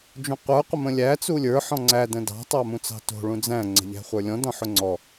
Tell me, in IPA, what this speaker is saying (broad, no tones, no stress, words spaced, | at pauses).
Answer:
d͡ʒũqʷə˞ qʷəmə̃lʲæ t͡sulʲə˞ ħɔ̃ŋ͡ǀæ də̃dɑ̤ tˤɑmũt͡sɑ̤to̤ ɭũd͡zæ̃ ŋ͡ǀə̤ʎæ̤χʷə˞lʲɔ̃ dɔ̃ħʊŋ͡ǀɔ